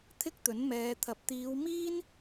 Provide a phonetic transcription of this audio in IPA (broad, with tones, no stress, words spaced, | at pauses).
t̪ʰɪ˥k̚t̪ɵ˨˥nmɛː˨˧t̪ʰɐ˨˥p̚ t̪iː˨˧wmiː˥n